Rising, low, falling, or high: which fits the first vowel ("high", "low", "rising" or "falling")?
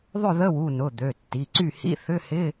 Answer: falling